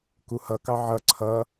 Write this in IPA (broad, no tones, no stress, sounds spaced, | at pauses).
k u h ʌ k ɑ ʕ ʌ ǀʰ ʌ